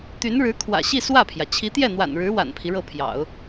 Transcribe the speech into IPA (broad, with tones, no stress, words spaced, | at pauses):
t̪y˧˥nɻɻ̩˧˥kʰwä̰˨˩ɕi˥˧ swä˥˩pʰjä˩ t͡ɕʰi˧˥t̪jɛ˥˩n̪wa̰˨˩nɻɻ̩˧˥ wa̰˨˩npʰi˦ɻɤ˥˩ pʰjɑ̰˨˩˦ʊ̯